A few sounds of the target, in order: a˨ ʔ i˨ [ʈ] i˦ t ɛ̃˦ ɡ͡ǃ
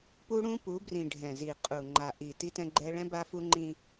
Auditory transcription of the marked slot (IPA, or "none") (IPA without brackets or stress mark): t